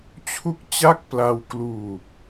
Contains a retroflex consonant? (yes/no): no